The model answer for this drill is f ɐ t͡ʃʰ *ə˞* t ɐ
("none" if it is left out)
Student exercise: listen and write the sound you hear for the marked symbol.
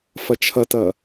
ɐ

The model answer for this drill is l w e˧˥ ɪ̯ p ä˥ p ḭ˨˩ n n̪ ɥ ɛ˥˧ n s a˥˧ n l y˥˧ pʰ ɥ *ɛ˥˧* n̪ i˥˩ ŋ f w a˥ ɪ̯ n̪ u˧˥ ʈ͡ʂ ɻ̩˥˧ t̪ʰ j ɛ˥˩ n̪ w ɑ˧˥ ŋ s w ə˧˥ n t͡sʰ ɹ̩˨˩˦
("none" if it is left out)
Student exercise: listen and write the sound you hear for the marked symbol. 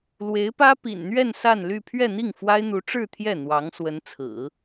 ɛ˥˧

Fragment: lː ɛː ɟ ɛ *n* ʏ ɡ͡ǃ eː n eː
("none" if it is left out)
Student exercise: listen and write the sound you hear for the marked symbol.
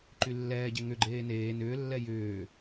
ŋ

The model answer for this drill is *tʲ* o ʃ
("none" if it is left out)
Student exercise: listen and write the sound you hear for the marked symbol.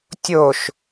tʲ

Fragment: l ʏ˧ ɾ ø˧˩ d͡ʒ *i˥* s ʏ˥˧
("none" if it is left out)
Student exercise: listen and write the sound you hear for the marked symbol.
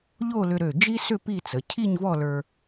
i˥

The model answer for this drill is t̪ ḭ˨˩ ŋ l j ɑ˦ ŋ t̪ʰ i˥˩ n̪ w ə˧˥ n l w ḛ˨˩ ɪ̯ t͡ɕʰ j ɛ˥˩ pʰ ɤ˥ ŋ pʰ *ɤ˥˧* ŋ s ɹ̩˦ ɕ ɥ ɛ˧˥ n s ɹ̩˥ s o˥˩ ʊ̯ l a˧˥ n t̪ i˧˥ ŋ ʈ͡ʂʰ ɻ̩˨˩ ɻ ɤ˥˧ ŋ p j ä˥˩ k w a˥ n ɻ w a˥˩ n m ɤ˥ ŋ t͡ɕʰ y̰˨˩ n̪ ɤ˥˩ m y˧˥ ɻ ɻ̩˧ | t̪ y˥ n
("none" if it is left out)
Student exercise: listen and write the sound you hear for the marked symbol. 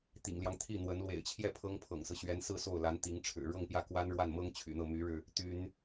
ɤ̰˨˩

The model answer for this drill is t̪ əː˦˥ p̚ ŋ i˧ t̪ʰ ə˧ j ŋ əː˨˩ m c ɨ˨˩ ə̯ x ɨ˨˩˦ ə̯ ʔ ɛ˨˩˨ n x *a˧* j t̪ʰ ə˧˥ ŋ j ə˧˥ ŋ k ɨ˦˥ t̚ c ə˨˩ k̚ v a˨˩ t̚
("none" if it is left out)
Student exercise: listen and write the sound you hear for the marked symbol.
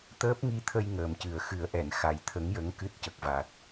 a˨˩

